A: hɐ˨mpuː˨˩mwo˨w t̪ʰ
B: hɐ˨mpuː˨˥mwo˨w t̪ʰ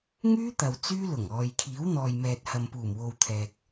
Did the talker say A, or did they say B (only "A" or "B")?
A